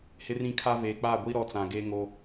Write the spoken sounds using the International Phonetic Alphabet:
h ɪ˦ r ĩ˦ kʰ a˦ v eː˨ k͡p aː˦˨ ɡʷ i˦ ɾ ɔ˦ t͡s ã˨ ɡ eː˦ ŋ o˦

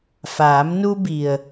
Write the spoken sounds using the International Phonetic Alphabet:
f aː˩˧ m n u˧ b i˩ ə̯

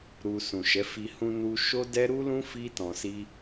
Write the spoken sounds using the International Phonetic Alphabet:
ɾ u˧ s ũ˨ ʃ ɛ˨˦ f i˧ h ũ˧ n u˧ ʃ o˦ d ɛ˦ ɾ u˦ l ũ˦ f i˦ t ɔ̃˧ s i˦

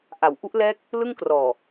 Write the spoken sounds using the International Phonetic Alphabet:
ʔ a˩˦ w ʔ u˦˥ ʔ l ɛː˦˥ k̚ | l ɯ˥˩ ŋ k r ɔː˨˩

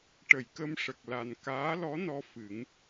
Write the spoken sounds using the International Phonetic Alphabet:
ʈ ə˨˩˨ j k ə˧ m ʂ ə˨˩ k̚ l a˨˩ n k aː˧˥ l ɔ˧˥ n ɔ˧ f ɨ˨˩˦ ŋ

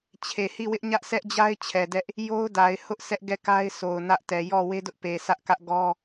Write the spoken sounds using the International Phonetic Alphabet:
t͡ɕʰ e˨ h i˦˨ w ɪ˦ ʔ ɲ ä˦ ʔ sʰ ɛ˦ ʔ d͡ʑ a˦ ɪ̯ t͡ɕʰ ɛ˨ d ɛ˦ ʔ | j o˦ ʊ̯ d a˨ ɪ̯ h ʊ˦ ʔ sʰ ɛ˦ ʔ ɡ ɛ˦˨ k a˦ ɪ̯ sʰ o˨ ʊ̯ n ä˦ ʔ t ɛ˨ j ɔ˦˨ w e˦ d ʊ˦ ʔ p e˨ sʰ ä˦ ʔ k ä˦ ʔ ɡ ɔ˦

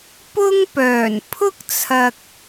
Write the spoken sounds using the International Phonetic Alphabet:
p ʊ˥ ŋ p œː˨˩ n pʰ ʊ˥ k̚ t͡sʰ ɐ˨ k̚

